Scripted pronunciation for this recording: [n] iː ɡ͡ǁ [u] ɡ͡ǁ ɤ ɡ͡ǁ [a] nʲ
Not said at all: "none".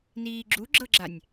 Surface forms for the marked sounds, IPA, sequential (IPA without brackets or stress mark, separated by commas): n, u, a